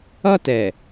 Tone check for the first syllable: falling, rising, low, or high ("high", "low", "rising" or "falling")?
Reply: high